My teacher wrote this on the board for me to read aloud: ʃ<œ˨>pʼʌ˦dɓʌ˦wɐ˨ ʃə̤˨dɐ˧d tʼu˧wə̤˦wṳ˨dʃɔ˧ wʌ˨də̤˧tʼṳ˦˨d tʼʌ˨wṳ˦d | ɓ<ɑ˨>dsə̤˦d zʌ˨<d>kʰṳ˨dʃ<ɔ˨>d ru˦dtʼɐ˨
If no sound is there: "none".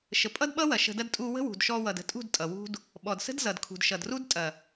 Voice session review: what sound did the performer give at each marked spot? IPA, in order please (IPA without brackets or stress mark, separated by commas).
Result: ə˨, ɔ˨, d, ʌ˨